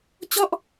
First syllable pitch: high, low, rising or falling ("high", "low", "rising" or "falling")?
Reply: falling